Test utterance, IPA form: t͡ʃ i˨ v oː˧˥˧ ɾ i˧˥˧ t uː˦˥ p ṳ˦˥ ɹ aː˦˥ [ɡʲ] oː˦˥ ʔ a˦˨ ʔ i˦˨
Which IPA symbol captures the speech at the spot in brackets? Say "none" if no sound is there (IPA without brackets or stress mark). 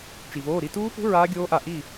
ɡʲ